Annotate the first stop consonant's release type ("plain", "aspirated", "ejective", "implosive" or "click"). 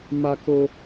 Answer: plain